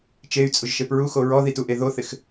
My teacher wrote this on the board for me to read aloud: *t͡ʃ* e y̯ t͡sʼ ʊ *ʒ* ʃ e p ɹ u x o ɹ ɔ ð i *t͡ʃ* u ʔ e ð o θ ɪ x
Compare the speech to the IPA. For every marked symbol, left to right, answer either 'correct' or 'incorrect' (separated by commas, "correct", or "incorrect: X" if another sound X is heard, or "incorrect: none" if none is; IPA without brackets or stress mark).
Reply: correct, correct, incorrect: t